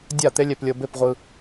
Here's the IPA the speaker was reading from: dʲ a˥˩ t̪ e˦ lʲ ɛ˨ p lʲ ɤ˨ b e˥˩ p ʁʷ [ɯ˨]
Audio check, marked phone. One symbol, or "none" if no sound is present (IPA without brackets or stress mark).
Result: ɯ˨